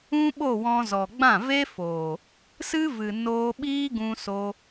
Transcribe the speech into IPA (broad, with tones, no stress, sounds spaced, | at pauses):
ũ˦ ɓ o˦˨ w ɔ̃˧ z ɔ˨ ɡ͡b ã˦˨ v e˦ f oː˨ | s ɨ˦ v ɨ˨ n oː˧ ɓ iː˦ ɡ ũ˧ s o˧